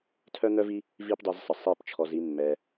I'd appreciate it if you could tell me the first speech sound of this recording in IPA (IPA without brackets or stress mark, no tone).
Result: tʰ